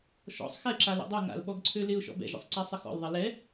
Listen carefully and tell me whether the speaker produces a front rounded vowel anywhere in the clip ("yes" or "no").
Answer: yes